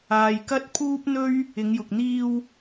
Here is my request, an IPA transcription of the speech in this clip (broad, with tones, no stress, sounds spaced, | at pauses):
aː˨ j k ɐ˥ t̚ pʰ uː˥ p̚ n̪ ɵ˥ ɥ | ɪ˨˧ ŋ j ʊ˨ k̚ n̪ iː˧ w